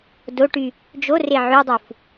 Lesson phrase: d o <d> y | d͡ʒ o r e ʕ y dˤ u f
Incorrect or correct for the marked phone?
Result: incorrect: ʈ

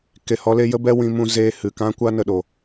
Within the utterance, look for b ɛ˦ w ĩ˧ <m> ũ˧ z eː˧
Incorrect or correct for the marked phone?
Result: correct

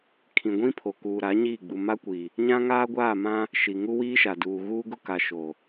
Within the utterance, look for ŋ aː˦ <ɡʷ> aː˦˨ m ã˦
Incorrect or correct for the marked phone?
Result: correct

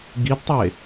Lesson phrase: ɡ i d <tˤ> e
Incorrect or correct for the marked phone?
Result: correct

